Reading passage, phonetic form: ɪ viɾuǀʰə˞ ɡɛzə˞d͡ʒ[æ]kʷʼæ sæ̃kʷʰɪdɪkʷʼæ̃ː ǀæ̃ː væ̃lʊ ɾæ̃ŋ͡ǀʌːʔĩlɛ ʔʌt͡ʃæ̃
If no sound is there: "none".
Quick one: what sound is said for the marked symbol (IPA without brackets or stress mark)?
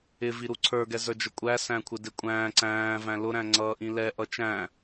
ə